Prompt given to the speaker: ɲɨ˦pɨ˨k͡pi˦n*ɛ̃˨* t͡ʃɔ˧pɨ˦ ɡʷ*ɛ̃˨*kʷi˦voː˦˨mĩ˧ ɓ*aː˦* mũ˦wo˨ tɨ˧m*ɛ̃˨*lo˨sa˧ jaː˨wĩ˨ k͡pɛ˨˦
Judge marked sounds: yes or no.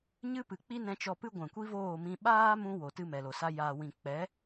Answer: no, yes, yes, no

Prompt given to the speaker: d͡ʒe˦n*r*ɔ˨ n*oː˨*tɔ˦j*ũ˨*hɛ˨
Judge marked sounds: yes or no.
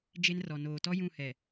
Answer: yes, yes, no

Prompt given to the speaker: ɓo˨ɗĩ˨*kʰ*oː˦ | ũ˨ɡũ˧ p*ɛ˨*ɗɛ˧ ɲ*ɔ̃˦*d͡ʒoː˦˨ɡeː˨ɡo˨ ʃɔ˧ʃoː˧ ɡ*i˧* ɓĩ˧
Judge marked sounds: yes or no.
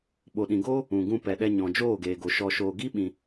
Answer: no, yes, no, no

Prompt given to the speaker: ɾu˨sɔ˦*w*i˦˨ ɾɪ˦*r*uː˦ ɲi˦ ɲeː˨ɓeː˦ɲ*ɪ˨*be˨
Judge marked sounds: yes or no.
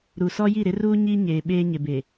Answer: no, yes, yes

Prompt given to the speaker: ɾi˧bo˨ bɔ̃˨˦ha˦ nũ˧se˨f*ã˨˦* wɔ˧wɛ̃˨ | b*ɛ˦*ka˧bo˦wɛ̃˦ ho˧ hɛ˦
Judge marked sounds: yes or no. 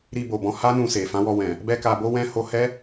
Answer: yes, yes

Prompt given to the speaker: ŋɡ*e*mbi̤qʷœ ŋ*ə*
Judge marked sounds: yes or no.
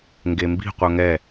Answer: yes, no

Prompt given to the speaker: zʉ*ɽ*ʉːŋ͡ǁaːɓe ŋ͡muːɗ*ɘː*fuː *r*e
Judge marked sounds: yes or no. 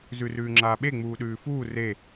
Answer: no, no, yes

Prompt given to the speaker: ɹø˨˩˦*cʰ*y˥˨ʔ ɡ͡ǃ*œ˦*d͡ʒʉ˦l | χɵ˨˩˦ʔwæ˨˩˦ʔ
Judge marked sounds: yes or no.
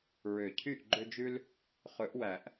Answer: yes, no

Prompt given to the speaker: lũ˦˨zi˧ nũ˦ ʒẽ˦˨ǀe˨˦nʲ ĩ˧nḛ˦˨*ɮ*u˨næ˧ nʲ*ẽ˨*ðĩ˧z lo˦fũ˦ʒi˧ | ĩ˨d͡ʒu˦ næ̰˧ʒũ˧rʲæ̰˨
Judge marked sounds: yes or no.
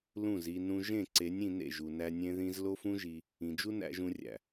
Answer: no, no

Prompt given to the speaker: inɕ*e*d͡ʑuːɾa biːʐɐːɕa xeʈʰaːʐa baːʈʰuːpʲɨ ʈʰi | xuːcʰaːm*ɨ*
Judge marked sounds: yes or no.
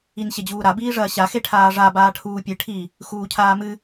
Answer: yes, yes

